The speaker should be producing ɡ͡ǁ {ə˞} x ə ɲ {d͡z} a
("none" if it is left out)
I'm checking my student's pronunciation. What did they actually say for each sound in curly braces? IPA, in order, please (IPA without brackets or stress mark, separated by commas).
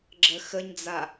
ə, d͡z